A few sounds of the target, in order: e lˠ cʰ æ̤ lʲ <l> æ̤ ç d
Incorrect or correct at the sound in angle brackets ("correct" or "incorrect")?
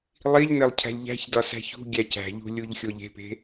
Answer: incorrect